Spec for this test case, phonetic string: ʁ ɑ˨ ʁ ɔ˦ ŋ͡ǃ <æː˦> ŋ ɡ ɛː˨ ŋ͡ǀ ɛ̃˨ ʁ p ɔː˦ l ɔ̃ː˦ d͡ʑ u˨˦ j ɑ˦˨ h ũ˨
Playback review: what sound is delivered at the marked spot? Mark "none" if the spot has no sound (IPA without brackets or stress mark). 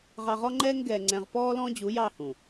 ɛː˦